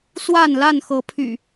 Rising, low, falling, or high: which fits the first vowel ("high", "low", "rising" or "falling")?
falling